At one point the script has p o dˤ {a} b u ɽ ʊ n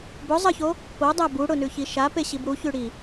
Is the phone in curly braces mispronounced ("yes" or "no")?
yes